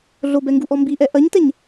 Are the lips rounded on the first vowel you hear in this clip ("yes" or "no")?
yes